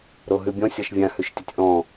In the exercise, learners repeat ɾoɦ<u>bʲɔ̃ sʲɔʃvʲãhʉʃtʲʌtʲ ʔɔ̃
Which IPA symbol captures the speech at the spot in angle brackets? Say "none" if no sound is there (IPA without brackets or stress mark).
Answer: ʉ